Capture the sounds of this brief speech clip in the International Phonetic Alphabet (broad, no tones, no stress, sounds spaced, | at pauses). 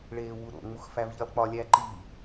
ɭ eː w u ɾ o̰ ŋ͡m u x f æ v ʎ i lˠ k͡p ɒ lʲ æ ǃ i